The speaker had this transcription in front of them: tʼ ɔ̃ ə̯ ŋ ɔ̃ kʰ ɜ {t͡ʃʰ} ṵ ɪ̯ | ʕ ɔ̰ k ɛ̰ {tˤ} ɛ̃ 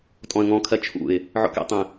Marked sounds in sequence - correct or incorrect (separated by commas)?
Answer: correct, correct